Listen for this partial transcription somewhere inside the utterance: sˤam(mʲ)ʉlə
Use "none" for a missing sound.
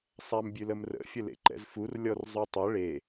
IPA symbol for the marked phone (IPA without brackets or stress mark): bʲ